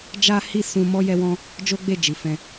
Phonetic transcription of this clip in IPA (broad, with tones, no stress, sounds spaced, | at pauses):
d͡ʒ a˦ h i˦ s ũ˧ m ɔ˦ j ɛ˦ w ɔ̃˦ | d͡ʒ o˦ ɡ͡b e˦˨ d͡ʒ i˨ f ɛ̃˧